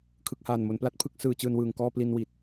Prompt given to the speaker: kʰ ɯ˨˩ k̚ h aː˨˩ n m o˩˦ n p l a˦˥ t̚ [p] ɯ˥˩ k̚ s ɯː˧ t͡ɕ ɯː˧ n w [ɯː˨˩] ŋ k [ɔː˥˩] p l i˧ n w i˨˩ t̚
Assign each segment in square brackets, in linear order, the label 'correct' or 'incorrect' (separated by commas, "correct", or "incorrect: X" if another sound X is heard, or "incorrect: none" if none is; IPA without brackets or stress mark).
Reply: incorrect: pʰ, correct, correct